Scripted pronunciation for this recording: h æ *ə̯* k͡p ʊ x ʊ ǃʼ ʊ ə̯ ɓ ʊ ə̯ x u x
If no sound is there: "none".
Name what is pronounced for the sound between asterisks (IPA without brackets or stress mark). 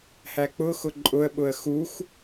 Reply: none